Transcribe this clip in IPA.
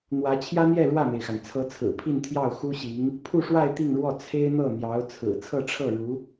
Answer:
n̪ w ä˧˥ t͡ɕʰ j ä˥ n̪ j ɛ˥˧ ɻ w ä˥˩ m e˩ ɪ̯ x a˩ n t͡sʰ ɤ˧˥ t͡sʰ ɹ̩˨˩ pʰ i˥˧ n t̪ʰ j ɑ˥˩ ʊ̯ x u˥ ɕ i˧˥ ŋ | pʰ u˥˧ ʂ w a˥˧ ɪ̯ t̪ i˥˧ ŋ ɻ w ɔ˥˩ t͡sʰ e˥ ɪ̯ n̪ ɤ˥˩ n̪ j ɑ˧˥ ʊ̯ t͡sʰ ɹ̩˨˩ t͡sʰ ɤ˥˧ ʈ͡ʂʰ ɤ˥˩ ɻ u˧˥

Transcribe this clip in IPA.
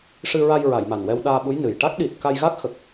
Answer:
ʂ ɨ˧ ɹ a˧ j ɹ a˨˩˨ j m a˨˩ n w ɛ˧ w ɗ aː˧ ɓ u˧˥ j n ɨ˨˩ j ʈ a˦˥ k̚ ɗ i˨˩ t̚ k a˧ j ɣ a˦˥ k̚ x ə˨˩ k̚

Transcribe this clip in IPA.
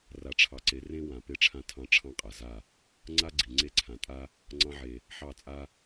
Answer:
r a˨ ʈ͡ʂʰ ɑ˨ ǀ e˨˦ r ẽ˦ w ã˨ p e˧ ʈ͡ʂʰ ã˧ tʰ ɑ̃˧ ʈ͡ʂʰ ɑ̃˦ qʼ a˨ z a˦˨ | ŋ͡ǀ a˦ ɡ͡ǀ i˨ ŋ͡ǀ e˦ ǀʰ ã˨ tʼ a˦ | ŋ͡ǀ ɑ̃˧ ʕ e˨ | ħ ɑ˦˨ t͡sʼ a˦

